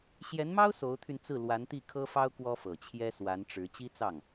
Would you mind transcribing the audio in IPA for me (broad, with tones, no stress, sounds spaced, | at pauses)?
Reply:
ɕ j ɛ˧˥ n m ɑ˥ ʊ̯ s o˧˥ ʊ̯ t̪ʰ y˧ n t͡s ɹ̩˥˩ l w a˧˥ n t̪ i˥˩ kʰ ɤ˥ f ɑ˥ ʊ̯ k w ɔ˥ f ɤ˨˩ t͡ɕʰ j ɛ˥ s w a˧˥ n ʈ͡ʂ ɻ̩˧˥ t͡ɕ i˥ t͡s ɑ˥˩ ŋ